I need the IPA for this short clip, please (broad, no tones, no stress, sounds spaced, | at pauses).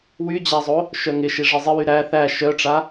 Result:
w y d͡ʑ a zˤ o | ʃ œ ŋ ɪ ʃ i ʐ ɪ zˤ ɪ w y ɾ æ θ æ ʃ œ ʈ͡ʂ a